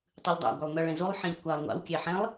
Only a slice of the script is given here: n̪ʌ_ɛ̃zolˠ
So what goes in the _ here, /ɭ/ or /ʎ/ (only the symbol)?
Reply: ɭ